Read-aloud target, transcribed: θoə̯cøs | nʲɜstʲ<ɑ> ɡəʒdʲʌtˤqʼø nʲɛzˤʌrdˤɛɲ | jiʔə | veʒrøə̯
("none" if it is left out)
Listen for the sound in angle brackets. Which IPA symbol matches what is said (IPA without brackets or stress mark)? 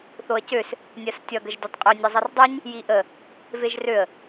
ʌ